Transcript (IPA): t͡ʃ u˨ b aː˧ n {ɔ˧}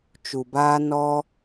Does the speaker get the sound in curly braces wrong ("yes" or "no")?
no